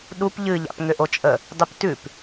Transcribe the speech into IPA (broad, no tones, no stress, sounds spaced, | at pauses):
ɗ u p ʎ ɨ ʎ a̰ p ŋ ʏ ʔ o t͡ʃʼ ə | dˤ y p t ʉ p